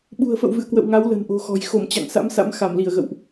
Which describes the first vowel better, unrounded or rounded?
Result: rounded